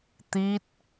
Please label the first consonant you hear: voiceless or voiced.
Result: voiceless